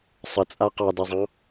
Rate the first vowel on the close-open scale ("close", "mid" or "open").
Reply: mid